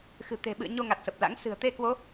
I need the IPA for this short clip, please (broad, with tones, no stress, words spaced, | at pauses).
xɨ̤˨˩t̪e̤˨˩ɓɨ̰˧˨ə̯ ɲo˧ŋa˨˩t̚ sə˨˩p̚ la̰˧˥ŋ sɨ̤˨˩ə̯t̪e˧kwo˨˦